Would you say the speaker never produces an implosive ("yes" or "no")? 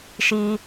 yes